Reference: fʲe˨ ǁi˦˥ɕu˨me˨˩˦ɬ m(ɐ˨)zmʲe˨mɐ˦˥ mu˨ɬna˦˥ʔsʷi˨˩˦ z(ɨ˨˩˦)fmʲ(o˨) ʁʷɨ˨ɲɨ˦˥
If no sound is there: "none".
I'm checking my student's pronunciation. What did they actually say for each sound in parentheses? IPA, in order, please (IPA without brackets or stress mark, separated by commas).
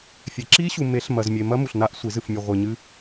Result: ɐ˨, ɨ˨, o˨